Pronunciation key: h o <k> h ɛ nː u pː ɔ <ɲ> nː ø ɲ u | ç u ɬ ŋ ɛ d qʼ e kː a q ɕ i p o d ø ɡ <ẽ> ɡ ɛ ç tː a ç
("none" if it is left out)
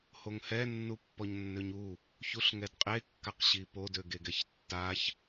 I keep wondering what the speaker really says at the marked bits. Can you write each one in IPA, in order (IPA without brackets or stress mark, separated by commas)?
ŋ, ɲ, e